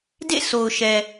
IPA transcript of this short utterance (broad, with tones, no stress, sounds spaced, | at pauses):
d ḛ˦˨ sʰ o˨ ʊ̯ ʃ ɛ˨